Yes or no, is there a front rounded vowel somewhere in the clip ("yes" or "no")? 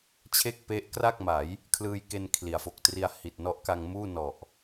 no